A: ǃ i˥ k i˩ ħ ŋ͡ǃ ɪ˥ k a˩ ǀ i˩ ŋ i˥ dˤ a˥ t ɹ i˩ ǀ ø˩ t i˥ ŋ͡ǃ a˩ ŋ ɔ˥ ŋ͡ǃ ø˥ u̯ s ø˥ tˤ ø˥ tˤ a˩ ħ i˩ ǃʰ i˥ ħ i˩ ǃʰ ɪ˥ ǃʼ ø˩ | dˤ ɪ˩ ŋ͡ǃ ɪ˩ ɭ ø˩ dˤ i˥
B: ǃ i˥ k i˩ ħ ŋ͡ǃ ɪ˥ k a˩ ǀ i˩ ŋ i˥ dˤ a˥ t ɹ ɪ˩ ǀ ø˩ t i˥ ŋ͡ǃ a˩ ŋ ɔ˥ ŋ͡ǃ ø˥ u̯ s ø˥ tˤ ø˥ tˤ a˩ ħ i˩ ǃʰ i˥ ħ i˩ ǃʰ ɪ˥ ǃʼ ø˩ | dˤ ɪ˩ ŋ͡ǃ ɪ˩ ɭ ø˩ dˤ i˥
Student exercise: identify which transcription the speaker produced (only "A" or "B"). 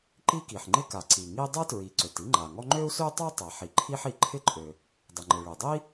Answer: A